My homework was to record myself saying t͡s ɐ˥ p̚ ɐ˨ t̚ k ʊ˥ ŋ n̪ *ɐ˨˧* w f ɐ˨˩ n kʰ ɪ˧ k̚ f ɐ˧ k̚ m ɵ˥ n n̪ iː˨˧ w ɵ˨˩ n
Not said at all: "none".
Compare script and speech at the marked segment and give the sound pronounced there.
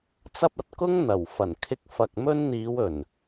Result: ɐ˨˩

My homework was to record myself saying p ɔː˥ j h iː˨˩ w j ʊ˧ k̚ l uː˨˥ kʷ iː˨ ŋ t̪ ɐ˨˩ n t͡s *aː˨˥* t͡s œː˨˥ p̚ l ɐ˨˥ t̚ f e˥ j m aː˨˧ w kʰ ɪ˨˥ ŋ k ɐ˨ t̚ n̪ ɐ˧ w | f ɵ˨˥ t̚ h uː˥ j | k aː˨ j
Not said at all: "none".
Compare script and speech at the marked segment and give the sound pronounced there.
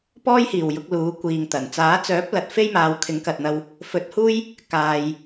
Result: aː˨˥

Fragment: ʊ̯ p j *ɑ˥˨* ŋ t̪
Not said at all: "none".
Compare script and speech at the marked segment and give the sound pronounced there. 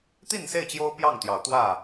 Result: ɑ˥˨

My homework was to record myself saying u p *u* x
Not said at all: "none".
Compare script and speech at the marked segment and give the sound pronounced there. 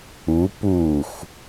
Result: u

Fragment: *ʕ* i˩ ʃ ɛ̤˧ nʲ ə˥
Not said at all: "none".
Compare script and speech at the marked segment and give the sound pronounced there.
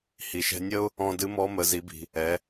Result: h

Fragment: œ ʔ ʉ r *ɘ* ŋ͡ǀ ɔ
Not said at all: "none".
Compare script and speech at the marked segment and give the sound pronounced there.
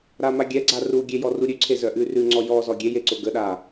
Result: ʉ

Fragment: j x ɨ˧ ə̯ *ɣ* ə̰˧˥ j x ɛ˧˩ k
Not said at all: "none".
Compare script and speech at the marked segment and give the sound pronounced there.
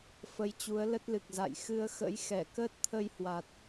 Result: x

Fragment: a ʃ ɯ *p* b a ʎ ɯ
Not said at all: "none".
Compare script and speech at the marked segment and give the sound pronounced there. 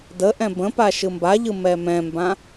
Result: m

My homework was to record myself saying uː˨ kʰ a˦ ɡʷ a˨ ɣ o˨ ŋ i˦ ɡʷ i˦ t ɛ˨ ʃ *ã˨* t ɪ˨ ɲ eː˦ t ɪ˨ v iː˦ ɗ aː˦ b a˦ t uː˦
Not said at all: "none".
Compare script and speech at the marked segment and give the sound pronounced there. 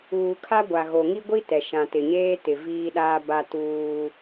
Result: ã˨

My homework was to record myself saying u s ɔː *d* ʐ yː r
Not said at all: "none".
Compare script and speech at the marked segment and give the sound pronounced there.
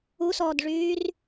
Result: d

